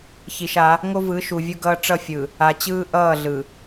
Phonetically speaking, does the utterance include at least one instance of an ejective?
no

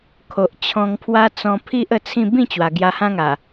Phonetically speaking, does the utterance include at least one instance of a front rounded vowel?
no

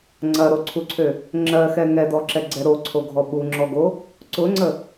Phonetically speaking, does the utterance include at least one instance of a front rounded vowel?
yes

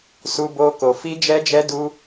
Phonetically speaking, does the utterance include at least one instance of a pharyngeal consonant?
no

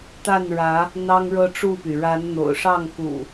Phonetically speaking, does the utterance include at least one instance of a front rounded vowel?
yes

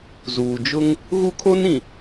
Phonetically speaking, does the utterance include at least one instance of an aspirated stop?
yes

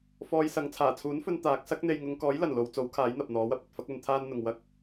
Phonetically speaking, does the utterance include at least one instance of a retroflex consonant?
no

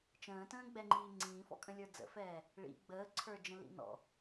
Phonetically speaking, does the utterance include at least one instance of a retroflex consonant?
yes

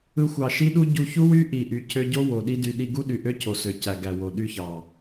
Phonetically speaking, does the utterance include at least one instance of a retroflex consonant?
no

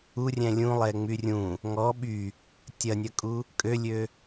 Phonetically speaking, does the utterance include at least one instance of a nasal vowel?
yes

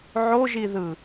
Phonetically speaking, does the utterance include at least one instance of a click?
no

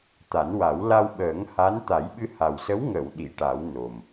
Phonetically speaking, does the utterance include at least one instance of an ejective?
no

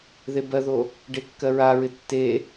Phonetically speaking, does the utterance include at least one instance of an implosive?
no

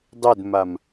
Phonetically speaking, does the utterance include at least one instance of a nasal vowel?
no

